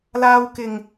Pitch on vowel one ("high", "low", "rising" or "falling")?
low